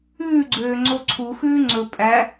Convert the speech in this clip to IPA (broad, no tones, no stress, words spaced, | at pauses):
ʉːɡ͡ǀøː ŋ͡ǀoǀʰuxʉː ŋ͡ǀɵ pʼæ